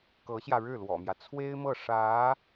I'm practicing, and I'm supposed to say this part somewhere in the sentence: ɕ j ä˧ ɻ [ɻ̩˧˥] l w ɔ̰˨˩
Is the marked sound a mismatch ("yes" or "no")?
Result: yes